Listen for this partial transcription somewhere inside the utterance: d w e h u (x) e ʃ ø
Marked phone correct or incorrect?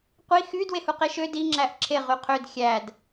incorrect